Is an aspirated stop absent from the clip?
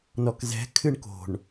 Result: no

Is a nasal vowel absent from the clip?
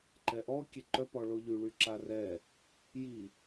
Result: yes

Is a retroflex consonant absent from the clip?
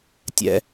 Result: yes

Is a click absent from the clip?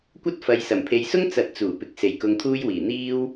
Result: yes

